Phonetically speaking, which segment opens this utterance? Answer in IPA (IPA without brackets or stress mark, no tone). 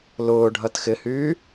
l